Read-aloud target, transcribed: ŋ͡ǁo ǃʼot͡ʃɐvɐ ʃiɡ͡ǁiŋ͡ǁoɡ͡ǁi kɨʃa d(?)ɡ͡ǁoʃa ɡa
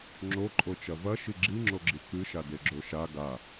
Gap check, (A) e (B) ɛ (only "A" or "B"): A